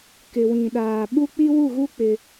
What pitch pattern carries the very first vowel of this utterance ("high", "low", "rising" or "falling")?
low